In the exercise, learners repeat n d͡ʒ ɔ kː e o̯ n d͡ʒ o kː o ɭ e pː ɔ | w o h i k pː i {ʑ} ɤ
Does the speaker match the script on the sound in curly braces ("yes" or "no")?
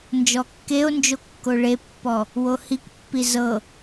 no